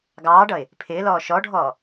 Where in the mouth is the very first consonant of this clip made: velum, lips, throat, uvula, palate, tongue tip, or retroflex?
velum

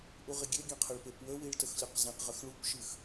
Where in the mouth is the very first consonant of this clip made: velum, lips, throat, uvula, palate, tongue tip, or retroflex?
throat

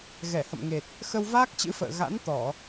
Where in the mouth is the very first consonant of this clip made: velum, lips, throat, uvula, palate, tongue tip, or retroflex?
velum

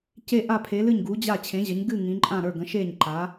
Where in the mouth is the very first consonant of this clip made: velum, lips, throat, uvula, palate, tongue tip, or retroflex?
palate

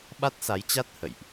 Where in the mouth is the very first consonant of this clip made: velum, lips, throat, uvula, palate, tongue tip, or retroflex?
lips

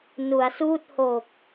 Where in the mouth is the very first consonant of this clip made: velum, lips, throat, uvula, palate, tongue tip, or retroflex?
tongue tip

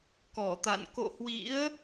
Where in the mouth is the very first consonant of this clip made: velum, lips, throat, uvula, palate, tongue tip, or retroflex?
velum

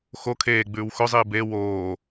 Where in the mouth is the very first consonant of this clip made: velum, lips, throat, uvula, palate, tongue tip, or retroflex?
velum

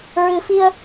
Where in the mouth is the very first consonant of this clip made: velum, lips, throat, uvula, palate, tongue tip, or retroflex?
tongue tip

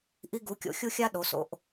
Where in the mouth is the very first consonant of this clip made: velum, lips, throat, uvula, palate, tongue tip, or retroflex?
throat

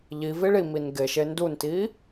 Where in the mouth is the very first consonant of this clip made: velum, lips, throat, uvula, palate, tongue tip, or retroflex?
palate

